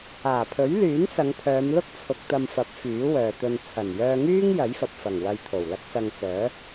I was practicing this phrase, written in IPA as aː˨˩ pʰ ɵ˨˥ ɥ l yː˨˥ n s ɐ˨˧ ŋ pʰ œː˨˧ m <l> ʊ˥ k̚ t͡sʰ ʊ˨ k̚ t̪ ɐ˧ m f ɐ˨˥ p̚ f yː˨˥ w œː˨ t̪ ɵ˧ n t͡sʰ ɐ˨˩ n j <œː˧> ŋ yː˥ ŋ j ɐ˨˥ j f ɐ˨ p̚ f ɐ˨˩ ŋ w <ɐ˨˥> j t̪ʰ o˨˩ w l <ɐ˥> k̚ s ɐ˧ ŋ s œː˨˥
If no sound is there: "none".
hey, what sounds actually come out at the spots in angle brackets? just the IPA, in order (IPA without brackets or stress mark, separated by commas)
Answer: l, œː˧, ɐ˧, ɐ˥